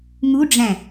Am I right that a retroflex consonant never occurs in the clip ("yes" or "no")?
no